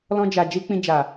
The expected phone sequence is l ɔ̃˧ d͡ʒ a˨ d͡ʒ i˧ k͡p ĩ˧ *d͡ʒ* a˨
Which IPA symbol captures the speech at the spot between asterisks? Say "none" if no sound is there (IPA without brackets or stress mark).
d͡ʒ